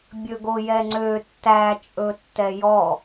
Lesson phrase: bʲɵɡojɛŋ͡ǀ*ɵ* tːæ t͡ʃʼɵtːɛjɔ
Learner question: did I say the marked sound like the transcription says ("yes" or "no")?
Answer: no